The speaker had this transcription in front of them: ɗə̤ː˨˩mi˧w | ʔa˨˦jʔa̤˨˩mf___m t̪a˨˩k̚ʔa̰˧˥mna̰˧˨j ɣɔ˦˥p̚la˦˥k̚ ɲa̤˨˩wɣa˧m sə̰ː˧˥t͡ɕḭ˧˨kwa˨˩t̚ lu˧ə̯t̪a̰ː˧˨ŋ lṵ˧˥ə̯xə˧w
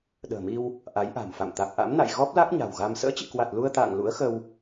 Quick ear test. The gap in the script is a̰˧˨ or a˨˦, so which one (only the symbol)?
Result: a̰˧˨